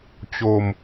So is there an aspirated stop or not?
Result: no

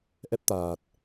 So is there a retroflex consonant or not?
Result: no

